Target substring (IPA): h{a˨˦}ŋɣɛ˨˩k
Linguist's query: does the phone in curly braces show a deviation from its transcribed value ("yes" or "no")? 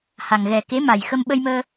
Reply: yes